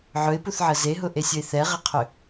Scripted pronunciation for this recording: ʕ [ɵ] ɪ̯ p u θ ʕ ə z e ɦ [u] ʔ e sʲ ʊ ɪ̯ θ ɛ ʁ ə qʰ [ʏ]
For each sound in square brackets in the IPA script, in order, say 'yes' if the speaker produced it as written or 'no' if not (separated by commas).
yes, no, yes